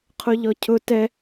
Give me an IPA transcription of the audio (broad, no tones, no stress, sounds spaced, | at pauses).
qʰ o ʎ ɔ cʰ ʊ t ɛ